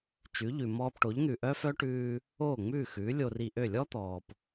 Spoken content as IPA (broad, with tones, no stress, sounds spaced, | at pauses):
t͡ʃ ʉ˩˥ ʎ ʉ˩ m ɔː˧ p ʈ o˩˥ ʎ n̪ ʉ˩ ʔ œ˥ f œ˥ ʈ ʉː˧ | oː˥˩ ŋ͡m ʉː˥˩ x ʉː˩˥ lʲ o˧ r i˧ ʔ ø˥˩ lʲ ɔ˥ t̪ ɔː˩ p